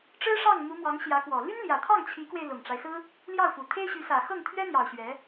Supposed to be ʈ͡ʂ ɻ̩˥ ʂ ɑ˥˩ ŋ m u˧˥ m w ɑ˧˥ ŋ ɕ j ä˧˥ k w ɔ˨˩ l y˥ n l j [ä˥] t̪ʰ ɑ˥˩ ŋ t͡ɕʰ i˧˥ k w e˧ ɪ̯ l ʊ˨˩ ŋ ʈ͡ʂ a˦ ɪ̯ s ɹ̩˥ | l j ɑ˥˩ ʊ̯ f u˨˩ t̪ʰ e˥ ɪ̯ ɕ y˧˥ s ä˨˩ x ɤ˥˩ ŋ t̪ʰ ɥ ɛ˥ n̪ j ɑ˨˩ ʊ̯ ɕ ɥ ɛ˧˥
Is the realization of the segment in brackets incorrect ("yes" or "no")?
yes